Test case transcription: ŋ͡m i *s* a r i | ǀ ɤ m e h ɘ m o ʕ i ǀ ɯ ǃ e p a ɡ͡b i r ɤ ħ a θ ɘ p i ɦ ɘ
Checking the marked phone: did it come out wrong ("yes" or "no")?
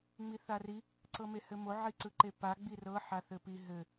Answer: yes